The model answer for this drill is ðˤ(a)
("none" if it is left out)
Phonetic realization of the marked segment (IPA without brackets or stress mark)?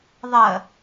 ɐ